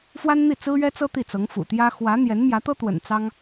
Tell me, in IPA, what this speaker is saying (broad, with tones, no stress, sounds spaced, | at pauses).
f w a˥ n n̪ i˥˩ t͡s ɹ̩˥ ɥ ɛ˥ t͡s ɤ˥ t̪ i˥˩ t͡s ɤ˧˥ ŋ f ṵ˨˩ t̪ j ä˥ x w ä˧˥ n̪ j ɛ˧˥ n m j ä˧˥ t̪ ɤ˥ t̪ w ə̰˨˩ n t͡s ɑ˥ ŋ